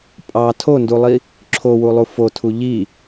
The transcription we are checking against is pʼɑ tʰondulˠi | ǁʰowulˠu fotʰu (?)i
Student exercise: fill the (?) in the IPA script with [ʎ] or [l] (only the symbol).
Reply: ʎ